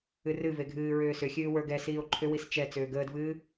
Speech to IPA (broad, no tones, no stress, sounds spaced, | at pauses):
ɨ r ɨ v e ɡʱ ɨː ɹ ʏː s ʏ xʲ ɨː w ə˞ ɡ ɛ s iː o̯ ǃʰ ʏ w i s t͡ʃ ɛ t͡s ʏː ɡ əː d v ɨː